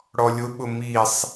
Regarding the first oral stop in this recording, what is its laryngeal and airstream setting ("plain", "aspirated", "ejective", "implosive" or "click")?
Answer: implosive